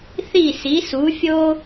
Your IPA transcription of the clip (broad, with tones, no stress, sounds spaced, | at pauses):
θ i˥˩ s i˩˥ s u˩˥ fʲ o˥